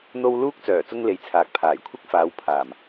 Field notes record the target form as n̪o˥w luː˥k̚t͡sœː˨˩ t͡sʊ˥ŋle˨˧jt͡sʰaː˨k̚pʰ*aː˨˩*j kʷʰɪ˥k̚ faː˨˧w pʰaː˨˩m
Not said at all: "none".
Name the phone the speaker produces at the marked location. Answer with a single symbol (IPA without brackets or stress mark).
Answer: aː˨˩